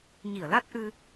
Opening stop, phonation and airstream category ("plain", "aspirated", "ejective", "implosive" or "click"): plain